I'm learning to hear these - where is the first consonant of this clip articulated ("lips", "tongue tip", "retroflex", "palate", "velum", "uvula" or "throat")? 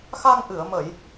velum